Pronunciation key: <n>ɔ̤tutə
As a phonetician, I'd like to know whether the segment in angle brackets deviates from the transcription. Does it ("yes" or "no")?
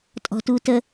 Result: yes